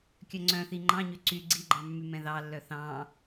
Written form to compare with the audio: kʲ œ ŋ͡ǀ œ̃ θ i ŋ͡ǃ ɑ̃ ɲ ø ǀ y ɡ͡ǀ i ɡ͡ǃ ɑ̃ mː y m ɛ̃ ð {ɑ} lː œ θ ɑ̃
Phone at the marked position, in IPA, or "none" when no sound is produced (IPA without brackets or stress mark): ɑ